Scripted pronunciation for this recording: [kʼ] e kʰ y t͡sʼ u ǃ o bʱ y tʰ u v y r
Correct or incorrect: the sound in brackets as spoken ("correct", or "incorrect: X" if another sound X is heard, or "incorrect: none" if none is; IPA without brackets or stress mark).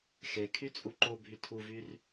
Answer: incorrect: x